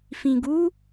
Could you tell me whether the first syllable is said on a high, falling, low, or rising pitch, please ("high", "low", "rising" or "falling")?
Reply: low